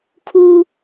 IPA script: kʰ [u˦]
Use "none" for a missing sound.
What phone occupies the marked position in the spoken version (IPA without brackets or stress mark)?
uː˦